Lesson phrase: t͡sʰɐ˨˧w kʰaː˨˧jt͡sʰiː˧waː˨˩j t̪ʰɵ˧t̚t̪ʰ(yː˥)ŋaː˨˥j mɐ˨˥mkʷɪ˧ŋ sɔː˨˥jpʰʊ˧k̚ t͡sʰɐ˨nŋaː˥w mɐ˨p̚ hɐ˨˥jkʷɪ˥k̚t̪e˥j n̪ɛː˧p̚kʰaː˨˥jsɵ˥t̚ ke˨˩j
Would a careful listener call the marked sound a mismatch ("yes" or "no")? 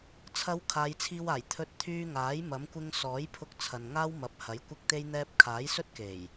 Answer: yes